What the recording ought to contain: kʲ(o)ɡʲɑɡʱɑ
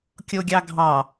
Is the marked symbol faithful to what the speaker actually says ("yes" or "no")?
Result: yes